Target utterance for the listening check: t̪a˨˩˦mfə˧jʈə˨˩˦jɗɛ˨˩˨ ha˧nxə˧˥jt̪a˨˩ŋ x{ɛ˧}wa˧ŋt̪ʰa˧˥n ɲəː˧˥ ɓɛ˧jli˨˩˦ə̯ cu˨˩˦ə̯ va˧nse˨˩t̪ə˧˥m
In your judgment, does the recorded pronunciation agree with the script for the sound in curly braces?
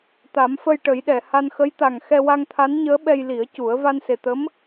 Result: yes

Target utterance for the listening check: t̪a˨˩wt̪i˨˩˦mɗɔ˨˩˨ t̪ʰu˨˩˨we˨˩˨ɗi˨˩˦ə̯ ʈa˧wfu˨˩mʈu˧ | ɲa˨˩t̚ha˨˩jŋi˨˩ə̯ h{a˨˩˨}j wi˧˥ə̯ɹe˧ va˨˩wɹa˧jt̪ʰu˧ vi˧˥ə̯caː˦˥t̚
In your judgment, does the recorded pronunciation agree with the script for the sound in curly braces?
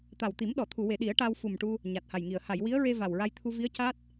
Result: yes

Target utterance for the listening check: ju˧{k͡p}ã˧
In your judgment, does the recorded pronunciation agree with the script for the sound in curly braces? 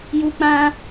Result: yes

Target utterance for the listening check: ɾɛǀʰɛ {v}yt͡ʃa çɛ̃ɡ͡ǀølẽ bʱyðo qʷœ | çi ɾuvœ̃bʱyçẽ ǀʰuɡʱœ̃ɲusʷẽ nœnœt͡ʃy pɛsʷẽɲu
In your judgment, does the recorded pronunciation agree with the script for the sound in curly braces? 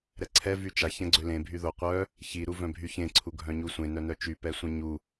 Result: yes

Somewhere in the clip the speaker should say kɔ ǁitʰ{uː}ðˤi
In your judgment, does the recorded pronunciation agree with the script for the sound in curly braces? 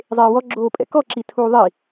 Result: yes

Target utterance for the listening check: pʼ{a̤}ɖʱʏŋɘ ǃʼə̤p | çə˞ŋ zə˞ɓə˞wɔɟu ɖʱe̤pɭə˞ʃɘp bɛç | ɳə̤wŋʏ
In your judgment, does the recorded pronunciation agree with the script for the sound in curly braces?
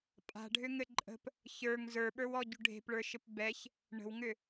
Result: yes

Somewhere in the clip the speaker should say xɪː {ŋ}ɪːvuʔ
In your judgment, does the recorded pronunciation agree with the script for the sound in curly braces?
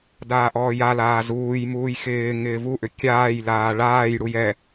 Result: yes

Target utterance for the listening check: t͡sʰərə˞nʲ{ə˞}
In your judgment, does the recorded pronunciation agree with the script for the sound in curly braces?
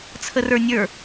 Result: yes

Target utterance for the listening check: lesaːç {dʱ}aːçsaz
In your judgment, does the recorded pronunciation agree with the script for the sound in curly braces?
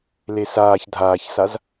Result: yes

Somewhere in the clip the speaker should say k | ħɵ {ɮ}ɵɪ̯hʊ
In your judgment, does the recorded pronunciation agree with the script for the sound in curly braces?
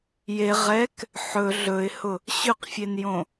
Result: yes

